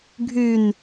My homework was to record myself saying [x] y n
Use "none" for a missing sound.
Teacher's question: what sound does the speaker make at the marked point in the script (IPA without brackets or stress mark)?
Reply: ɡʱ